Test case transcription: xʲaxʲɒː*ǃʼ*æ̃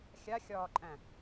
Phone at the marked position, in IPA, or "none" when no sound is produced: ǃʼ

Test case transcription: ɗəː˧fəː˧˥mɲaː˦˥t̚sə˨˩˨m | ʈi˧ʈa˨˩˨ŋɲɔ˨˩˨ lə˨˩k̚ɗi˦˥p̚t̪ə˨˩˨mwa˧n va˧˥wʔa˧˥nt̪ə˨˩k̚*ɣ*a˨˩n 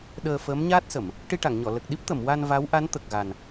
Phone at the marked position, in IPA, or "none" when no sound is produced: ɣ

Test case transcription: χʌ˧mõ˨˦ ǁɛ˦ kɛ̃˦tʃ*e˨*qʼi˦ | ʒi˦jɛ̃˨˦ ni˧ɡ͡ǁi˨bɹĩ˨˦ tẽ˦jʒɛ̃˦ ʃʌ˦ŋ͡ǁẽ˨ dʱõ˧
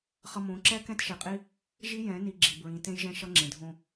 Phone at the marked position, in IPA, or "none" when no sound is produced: e˨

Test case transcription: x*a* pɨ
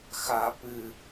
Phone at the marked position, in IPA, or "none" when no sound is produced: a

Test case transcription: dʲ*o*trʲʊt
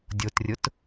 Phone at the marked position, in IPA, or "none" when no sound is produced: o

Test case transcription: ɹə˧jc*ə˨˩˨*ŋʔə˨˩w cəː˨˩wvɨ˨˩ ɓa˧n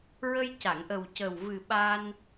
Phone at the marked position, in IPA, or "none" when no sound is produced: a˨˩˨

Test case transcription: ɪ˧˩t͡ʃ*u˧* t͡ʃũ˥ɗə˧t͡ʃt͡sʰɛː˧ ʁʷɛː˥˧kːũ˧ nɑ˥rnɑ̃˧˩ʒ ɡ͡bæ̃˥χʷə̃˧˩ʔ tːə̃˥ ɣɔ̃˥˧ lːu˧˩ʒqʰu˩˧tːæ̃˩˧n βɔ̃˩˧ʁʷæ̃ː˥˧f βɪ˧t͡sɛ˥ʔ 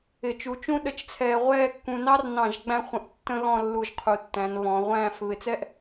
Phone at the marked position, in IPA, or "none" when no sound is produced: u˧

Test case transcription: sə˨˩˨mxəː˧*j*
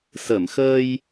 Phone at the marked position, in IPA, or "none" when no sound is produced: j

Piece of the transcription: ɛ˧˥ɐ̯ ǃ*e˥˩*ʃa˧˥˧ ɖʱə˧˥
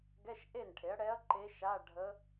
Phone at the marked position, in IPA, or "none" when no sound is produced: e˧˥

